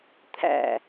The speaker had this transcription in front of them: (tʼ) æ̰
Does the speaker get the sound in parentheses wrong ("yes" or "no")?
yes